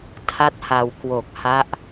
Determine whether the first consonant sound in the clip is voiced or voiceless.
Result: voiceless